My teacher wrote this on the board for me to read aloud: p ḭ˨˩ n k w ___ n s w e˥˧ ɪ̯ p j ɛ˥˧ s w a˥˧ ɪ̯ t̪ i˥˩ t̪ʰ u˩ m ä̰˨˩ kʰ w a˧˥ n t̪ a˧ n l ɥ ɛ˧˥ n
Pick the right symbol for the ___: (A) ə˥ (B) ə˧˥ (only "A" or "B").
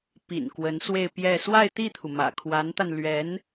B